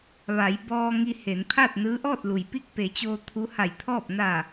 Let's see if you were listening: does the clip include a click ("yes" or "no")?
no